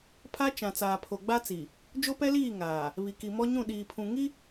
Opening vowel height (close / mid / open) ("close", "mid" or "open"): open